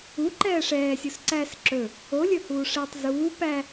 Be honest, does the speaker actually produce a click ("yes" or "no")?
yes